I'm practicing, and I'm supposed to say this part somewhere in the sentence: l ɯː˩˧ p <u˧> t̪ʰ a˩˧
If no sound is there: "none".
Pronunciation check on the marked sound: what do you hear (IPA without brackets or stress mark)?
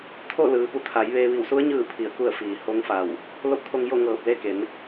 u˧